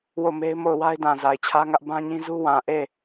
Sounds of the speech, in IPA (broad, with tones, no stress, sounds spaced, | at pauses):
w o˦˨ m e˦ ɪ̯ m o˦˨ ʊ̯ w a˦ ɪ̯ d ã˨ z a˨ ɪ̯ t͡ɕʰ ä˦ ŋ ä˦ ʔ b ã˦ ɲ ĩ˦ z u˦ w ã˨ ʔ e˦˨